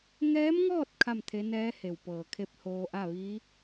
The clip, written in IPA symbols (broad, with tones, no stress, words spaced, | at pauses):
ŋɛː˧˥mŋɔː˥˨t̚ kʰa˥˨mt̪ʰe˧˥ nɛː˧˥ he˧˩wpɤː˧˩kʰe˥˨p̚ hoː˧ʔa˥˨ʋiː˧˥